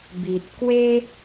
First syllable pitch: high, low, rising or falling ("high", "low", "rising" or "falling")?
low